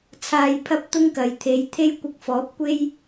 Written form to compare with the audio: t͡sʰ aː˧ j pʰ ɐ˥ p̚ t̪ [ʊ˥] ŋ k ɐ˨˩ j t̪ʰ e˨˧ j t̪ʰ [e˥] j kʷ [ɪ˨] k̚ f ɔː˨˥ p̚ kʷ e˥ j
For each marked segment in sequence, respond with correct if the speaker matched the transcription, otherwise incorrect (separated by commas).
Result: correct, correct, incorrect